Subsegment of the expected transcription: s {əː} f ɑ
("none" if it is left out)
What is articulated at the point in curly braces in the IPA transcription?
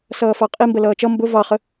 ʌː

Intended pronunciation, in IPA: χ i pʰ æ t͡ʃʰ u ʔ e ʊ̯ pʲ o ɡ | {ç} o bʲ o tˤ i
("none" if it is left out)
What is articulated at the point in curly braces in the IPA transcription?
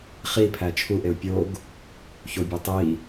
ç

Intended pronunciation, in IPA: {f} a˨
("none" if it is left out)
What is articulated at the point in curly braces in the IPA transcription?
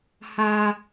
h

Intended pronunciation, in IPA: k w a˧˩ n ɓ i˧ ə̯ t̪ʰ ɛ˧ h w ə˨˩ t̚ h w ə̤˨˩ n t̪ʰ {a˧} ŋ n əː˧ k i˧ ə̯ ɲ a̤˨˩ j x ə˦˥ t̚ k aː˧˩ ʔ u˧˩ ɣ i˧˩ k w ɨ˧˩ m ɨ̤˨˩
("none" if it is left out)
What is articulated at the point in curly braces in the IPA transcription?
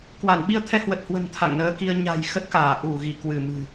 a̰˧˨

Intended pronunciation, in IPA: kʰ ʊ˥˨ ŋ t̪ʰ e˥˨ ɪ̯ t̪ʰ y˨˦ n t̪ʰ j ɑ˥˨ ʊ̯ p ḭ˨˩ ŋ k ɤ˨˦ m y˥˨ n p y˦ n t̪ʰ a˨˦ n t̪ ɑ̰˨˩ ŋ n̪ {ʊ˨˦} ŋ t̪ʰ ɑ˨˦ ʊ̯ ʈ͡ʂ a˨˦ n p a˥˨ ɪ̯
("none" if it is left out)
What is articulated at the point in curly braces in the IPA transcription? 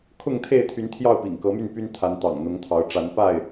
ʊ˨˦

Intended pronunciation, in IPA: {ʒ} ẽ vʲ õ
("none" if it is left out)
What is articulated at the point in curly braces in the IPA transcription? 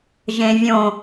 ʒ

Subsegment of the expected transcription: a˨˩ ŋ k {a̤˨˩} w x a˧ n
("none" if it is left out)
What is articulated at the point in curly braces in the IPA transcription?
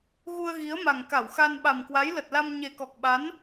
a˧˩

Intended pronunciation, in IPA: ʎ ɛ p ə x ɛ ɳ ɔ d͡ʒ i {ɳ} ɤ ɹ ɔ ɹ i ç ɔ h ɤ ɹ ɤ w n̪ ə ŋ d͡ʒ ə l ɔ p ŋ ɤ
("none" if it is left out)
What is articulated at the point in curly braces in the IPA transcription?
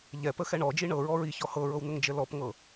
ɳ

